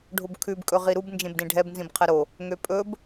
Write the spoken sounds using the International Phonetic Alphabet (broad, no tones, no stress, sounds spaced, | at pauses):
ɖʱ o b kʰ ʉ b kʼ ɵ ʁ i ɾ u b n d͡ʒ ẽ b d ẽ ɖʱ ɛ b n z ĩ b qʰ ɛ ɾ o | ŋ ø pʼ ɵ b